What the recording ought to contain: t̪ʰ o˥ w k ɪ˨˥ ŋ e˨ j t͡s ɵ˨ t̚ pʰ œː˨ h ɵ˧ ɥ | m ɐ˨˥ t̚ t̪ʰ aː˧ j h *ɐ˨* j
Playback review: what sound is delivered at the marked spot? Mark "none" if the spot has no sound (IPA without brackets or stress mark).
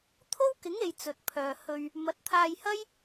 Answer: ɐ˥